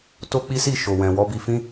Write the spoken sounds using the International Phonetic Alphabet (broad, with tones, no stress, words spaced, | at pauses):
to˦k͡pi˦si˦˨ ʃo˨wɛ̃˨ wɔ˧bi˧fĩ˦